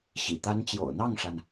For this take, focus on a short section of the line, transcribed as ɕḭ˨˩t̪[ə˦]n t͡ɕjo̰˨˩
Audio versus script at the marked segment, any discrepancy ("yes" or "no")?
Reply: yes